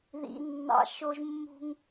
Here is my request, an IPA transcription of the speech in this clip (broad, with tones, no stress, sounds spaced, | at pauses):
ð ḭ˧ nː ɑ̰˦ ʃ o˦ ʒ mː ṳ˦ ŋ